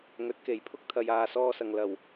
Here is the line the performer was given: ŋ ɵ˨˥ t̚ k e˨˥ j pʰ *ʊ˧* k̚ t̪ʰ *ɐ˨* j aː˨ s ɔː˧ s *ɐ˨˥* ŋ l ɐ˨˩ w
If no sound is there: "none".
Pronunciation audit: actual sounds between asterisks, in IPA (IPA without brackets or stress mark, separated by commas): ʊ˥, ɐ˨, ɐ˨